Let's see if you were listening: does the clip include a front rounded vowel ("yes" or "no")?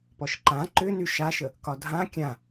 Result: yes